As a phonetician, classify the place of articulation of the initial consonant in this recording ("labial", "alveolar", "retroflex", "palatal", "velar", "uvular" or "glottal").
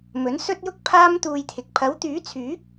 labial